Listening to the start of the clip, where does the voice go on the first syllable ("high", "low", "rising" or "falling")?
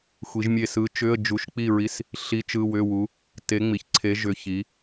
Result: rising